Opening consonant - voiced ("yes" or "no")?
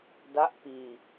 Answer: yes